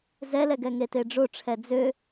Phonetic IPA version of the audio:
z ɛ l ɛ ɡ ɛ ŋ e t e ɖ͡ʐ o ʈ͡ʂʰ ɛ d͡z ø

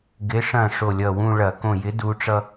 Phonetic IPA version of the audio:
ɡ ɪ˨˥ ʂ ɐ̃˧˩ ʂ o˧˩ lʲ ʌ˧˩ w ũ˥˧ ɭ ɐ˧˩˧ k õ˧˩ j ɪ˨˥ d u˩˧ ʈ͡ʂ ʌ˧

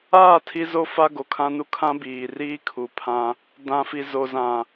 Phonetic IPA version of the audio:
aː˦˨ tʰ i˦ z o˦ f a˦ ɡ o˨ kʰ ã˦ n u˦ kʰ ã˦ b iː˨ r iː˦ kʰ u˨ pʰ ã˦ | d ã˨ f i˨ z o˨ z ã˨

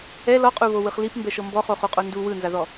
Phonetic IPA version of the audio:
ɛ l ɔ qʼ u β o w ɯ χ l i p m b ɛ ʃ ɤ m b ɔ χ o χ u qʼ o n d u w ɯ n z a ð ɔ

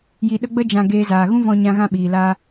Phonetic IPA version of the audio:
j i˨ ɗ ə˧ ɡ͡b ə˧ d͡ʒ ã˨ ɡ eː˧ z aː˨ ɣ ũ˦ v ɔ̃˧ ɲ ã˧ ɣ ã˧ ɓ iː˨ l aː˦

